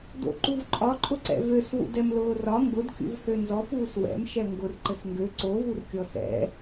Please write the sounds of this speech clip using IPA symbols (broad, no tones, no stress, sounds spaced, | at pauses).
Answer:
d o̰ ǃ u v ǃʼ ɒ ǃʼ ʊ ǀ ɛ̰ v ø s w ṵ d ɛ m l ʊː r ɒ ŋ ɡ ʊ d kʲ ṵ v h ø n z ɔ p uː s w ɛ̰ m ʃ ɛ ŋ ɡ ʊ r ǃ ɘ s ŋ ɡ ø ǀ o v u r kʲ ɔ s ɛ̰